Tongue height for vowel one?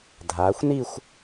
low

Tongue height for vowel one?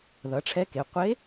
mid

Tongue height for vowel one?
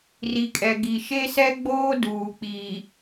high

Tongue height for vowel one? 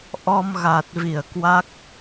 mid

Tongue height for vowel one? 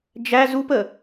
low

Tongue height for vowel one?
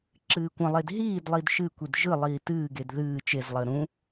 high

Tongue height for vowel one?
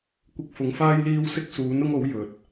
high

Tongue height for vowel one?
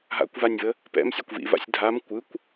low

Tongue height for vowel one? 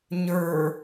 mid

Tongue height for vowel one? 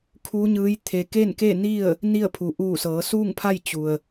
high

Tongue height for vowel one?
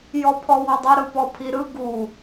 mid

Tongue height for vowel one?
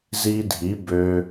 high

